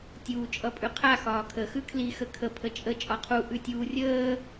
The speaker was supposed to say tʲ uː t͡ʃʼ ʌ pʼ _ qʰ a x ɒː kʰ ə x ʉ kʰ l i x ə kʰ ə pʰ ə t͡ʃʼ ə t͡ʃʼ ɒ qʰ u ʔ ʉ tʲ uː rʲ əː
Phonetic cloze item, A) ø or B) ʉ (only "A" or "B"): B